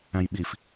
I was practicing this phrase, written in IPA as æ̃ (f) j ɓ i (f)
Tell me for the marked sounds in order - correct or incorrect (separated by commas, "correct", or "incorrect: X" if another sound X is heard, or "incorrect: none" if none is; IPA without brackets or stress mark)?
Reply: incorrect: none, correct